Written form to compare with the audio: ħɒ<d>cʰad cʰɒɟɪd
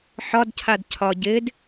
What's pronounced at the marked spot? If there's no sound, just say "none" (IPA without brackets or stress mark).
d